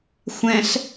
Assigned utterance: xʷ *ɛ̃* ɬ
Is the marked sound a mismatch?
no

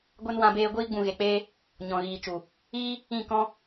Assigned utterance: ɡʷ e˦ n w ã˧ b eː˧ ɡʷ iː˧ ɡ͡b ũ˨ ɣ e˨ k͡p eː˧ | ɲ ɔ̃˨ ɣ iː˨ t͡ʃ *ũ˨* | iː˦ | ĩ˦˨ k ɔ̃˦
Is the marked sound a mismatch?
yes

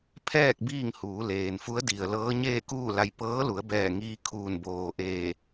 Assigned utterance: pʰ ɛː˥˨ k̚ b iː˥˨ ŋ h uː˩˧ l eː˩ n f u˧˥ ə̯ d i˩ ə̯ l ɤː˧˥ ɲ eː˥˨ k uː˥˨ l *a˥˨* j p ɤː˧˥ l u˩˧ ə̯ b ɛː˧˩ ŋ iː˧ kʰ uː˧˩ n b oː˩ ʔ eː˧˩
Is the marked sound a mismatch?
yes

